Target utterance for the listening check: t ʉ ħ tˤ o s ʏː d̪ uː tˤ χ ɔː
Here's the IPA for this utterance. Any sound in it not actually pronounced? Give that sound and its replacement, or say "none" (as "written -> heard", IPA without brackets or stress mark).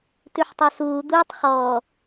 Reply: ʏː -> uː